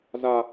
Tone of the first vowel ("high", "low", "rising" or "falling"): low